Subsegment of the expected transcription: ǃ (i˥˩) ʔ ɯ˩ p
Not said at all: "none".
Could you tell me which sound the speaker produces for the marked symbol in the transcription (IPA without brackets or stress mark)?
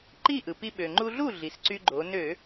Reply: i˥˩